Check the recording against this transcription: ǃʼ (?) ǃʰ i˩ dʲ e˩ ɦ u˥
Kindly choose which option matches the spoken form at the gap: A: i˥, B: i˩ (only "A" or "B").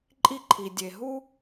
A